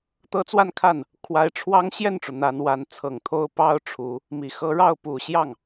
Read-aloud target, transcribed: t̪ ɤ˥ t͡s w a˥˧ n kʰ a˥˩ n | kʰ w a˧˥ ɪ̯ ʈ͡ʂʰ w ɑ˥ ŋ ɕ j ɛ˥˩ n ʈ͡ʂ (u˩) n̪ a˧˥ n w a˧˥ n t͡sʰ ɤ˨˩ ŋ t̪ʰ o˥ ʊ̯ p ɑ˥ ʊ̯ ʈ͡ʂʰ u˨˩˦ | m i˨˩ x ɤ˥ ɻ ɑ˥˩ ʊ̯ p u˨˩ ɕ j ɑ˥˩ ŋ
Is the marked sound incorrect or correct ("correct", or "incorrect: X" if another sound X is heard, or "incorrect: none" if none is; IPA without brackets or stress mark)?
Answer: correct